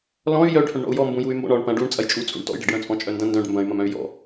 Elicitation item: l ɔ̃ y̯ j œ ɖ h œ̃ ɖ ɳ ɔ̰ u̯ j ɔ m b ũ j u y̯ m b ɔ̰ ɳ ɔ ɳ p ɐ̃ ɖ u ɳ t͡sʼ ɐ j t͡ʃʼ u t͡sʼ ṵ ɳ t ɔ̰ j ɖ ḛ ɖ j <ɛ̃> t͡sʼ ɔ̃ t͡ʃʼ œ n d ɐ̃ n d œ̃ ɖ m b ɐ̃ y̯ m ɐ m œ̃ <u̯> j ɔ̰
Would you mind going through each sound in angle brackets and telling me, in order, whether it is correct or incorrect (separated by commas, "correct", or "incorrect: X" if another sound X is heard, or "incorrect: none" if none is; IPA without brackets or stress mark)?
incorrect: œ̃, incorrect: y̯